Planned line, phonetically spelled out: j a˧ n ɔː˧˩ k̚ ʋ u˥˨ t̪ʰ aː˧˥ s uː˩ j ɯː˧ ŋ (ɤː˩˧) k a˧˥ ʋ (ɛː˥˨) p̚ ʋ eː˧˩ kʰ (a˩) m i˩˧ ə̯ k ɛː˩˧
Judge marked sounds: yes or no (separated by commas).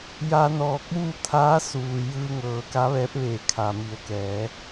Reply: yes, no, yes